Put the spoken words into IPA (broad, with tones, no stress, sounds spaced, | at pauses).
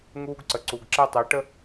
ŋ uː˦ ɡ ǀ ə˨ ǀ u˨ ɡ ǁ ɛ˦ tˤ ɜ˨˦ ʈ ə˦